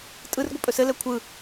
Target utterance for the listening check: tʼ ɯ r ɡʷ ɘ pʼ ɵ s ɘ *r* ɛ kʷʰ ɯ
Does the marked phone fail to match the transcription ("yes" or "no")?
yes